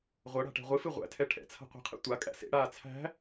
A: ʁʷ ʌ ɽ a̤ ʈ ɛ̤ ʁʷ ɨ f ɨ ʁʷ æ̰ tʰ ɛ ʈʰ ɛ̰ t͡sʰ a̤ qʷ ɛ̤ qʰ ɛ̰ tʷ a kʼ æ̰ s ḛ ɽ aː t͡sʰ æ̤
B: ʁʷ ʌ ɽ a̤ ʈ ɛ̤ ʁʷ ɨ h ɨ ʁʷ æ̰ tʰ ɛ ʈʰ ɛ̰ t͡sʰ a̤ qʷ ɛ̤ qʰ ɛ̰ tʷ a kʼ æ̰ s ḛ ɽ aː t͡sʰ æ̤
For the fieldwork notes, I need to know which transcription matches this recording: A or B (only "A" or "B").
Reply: A